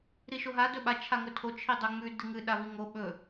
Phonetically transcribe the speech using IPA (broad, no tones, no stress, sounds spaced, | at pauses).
ɾ i ʃ o ɦ a d ɵ ɓ a t͡ʃʰ a ŋ ɵ tʰ o t͡ʃʰ i dˤ ɵ ŋ͡m ʉ d ɨ ŋ ɨ ɗ a v i ŋ o ɓ ɵ